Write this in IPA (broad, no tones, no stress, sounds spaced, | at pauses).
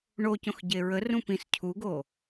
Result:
ɳ o c õ x ɟ e ɹ ə r ũ p ĩ s cʰ u ɡ o